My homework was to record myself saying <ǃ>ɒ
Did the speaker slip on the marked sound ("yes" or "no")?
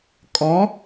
yes